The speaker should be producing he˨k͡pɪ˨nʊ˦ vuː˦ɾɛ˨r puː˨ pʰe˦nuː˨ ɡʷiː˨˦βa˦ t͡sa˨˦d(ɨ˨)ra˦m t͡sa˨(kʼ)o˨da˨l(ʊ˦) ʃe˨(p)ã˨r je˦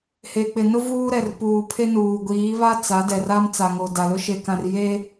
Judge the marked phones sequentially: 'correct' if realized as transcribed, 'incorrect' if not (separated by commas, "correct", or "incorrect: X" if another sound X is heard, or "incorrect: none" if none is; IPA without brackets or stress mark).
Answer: incorrect: ɛ˨, incorrect: ŋ, correct, incorrect: k